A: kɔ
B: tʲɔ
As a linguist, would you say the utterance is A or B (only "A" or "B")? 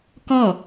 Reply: A